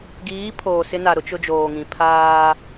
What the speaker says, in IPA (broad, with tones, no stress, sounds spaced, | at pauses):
ɡ iː˨˦ pʰ oː˨ s ɪ˦ n a˨ ɾ ʊ˦ t͡ʃ ʊ˦ d͡ʒ oː˨ ŋ ĩ˨ pʰ aː˦